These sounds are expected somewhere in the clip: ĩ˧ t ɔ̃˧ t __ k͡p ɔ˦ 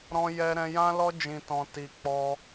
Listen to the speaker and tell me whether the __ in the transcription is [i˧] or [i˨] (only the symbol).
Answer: i˧